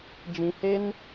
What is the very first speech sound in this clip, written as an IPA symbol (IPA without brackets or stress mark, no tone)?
d͡ʒ